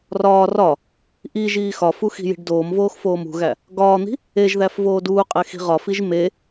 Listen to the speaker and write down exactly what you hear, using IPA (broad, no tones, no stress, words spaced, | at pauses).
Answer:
rɒː rɒ | ʔiʒiː xɒfu xi̤ji̤ɖdoːmvoːx foːmṳɣæ | ɡɒːn̪i̤ | eʒðæf voːduːqʼe xi̤ʁɒfiʒ me